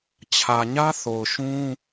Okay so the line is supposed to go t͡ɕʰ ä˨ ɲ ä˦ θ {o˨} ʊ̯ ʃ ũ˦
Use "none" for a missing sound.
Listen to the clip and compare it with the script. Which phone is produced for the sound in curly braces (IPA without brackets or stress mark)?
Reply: o˨